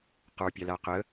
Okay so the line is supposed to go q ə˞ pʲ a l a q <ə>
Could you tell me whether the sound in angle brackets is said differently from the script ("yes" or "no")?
no